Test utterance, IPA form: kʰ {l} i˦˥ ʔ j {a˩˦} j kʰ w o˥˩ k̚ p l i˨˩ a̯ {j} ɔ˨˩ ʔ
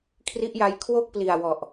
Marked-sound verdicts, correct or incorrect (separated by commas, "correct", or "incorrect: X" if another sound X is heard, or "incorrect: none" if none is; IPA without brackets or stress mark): incorrect: r, incorrect: a˦˥, incorrect: w